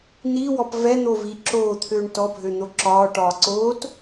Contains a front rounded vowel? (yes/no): yes